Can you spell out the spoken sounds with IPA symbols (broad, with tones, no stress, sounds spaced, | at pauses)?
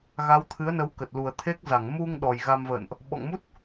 ɣ a˨˦ w t̪ʰ ɨ˨˦ ə̯ n ə˨˦ w k ə˨˩ t̚ l u˨˩ ə̯ t̪ʰ e˦˥ k̚ z a˧˩ ŋ m u˧ ŋ ɗ ɔ˨˩ j ɣ a˧ m v ə̰ː˧˨ n ʔ | ɓ ɔ̰˧˨ ŋ m u˦˥ t̚